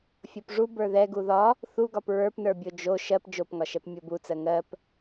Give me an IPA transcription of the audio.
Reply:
fʲopʐu bə˞ðɛ ɡuðɒ | θuɡɒp ɹə˞pnə˞bʲo d͡ʒo ʃɜp d͡ʒopŋɒʃɛp mʲobut͡sɜ ŋɜp

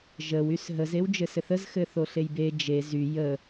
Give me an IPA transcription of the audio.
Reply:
ʒəw ysɦəz ewd͡ʒɘsɘθəz xɘθoɬejbe d͡ʒe zy jə

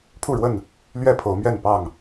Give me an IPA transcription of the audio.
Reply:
pʰu˥˨ɻwə˥˨n | lɥɛ˥˨pʰo˨˦ʊ̯mɥɛ˥˨npɑ˥˨ŋ

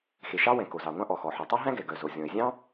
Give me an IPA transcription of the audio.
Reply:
xe˩ʃɑ˥wɛ̃˩ ko˩zɑ˩ŋʷɑ̃˥ ʔɔ˩xɔ˩ħo˩ tˤo˥ɦæ̃˥ɡɛ˩ ɡœ˩zo˩ zʲɔ̃˩ɪ̯zʲɑ̃˥

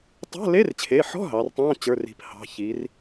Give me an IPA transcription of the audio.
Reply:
tˤa̤˧˥˧le˧˥˧rt͡ɕʰe˩˧˩ħɔ̤˧˥˧ ɦɑ˩˧rtˤɑ̃˧˥˧ t͡ɕə˞˩˧˩ri̤˩˧phɑ̤˩˧˩ çi˩˧r

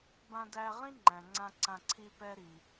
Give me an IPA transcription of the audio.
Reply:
bã˧dæ˧ʁĩ˥ ŋ͡ǃæ̃˩ŋ͡ǀã˧ ǀã˧ǀʰi˥pɛ˥ɾi˩

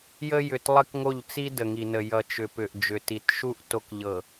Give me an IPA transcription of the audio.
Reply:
jə˦ jʏ˨t lˠə˦kŋo˦˨ʎt͡si˦ də˨ŋi˨nə˨ jʌ˨ t͡ʃʏ˨ pʏ˨ʔ d͡ʒʏ˨ti˨t ʃu˦ʔ to˨kʎɤ˨

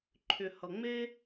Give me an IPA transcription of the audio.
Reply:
ǃʰʏ˨hʌ˨ŋ͡me˦

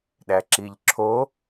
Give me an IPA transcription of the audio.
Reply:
ɗæǁiʎǁʰo

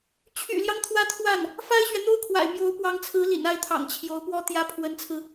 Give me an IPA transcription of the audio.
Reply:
t͡ɕʰy̰˨˩ljɑ˦ŋ t̪ʰwä˥t̪ʰwa˥˩n | fa˥ɪ̯ɕɥɛ˨n̪o˥ʊ̯kʰwa̰˨˩ɪ̯ mjo˧˥ʊ̯pwɑ˧˥ŋt͡sʰɹ̩˧˥ lḭ˨˩na˥˩ɪ̯t̪ʰɑ̰˨˩ŋ t͡ɕʰjo˧˥ʊ̯pwɔ˥t̪jä˥ pʰwə˧˥nt͡sʰɹ̩˧

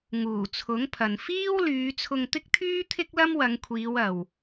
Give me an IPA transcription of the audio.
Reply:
ŋuː˨˩t͡sʰʊ˨˥ŋpʰɐ˨n fiː˥w lyː˨˧t͡sʰʊ˧ŋt̪ɪ˥k̚t̪ʰyː˥ t̪ʰɪ˥k̚lɐ˥mwɐ˨˧ŋkʷʰiː˨˧w ɐ˨w

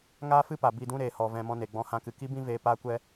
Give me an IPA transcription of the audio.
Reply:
ŋaː˦fɨ˦pa˨ bi˦˨dũ˦ɾeː˨ hɔ˨ vɛ̃˧mɔ̃˦ne˨ ɡ͡bɔ̃˧ hã˧kɨ˨ ki˦bĩ˦ veː˧ paː˧kʷɛ˧

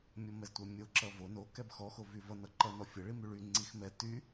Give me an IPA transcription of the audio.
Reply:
mʲɔmɛztʷɛmʲo ǁʌvo no kɛbxɔ xovyvʌ nʌǃʌ nɔfʲʌ ɭimyɭy ŋ͡ǀixmɛ ty

